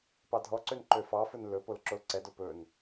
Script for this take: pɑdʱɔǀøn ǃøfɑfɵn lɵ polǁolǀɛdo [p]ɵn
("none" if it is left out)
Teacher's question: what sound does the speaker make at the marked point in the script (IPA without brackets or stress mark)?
p